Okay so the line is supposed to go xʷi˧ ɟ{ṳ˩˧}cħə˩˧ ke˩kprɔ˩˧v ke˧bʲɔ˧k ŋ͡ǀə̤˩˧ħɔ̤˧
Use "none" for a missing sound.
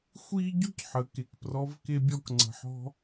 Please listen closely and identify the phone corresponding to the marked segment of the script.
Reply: ṳ˥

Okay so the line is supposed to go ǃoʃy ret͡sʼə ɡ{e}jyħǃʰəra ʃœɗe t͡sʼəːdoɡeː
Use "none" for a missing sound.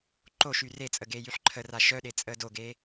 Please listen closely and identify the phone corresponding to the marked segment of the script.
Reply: eː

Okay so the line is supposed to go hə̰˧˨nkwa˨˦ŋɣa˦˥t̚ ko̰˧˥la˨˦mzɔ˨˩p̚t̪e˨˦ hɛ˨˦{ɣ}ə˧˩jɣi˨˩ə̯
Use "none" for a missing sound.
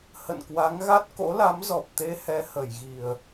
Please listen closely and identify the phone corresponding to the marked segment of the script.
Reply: h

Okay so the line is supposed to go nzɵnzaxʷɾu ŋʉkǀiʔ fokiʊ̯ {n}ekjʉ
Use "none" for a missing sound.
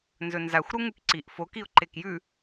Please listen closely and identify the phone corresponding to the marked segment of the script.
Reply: ǃ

